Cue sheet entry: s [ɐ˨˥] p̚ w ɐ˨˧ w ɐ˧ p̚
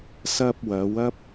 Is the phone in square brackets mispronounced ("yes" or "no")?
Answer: yes